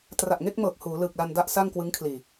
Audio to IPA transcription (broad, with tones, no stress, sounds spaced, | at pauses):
t r a˨˩ ʔ ŋ e˥˩ k̚ m ɤː˨˩ k̚ h uː˩˦ l ɯː˨˩ k̚ l a˧ n d a˥˩ ʔ s a˥˩ ŋ k w ɯ˦˥ ŋ kʰ l iː˨˩